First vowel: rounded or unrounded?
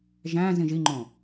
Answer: unrounded